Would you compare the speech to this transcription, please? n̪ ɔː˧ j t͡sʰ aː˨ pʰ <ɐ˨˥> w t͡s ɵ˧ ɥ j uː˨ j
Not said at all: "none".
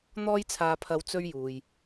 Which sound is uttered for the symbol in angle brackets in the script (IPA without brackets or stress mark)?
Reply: ɐ˨˧